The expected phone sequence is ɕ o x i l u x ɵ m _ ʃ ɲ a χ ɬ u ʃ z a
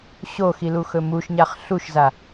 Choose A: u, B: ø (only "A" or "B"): A